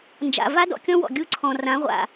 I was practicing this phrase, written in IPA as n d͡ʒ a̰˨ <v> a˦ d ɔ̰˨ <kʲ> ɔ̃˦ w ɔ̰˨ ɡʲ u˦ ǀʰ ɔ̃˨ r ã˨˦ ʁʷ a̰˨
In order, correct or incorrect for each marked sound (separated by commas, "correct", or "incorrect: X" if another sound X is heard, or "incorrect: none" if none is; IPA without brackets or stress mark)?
correct, correct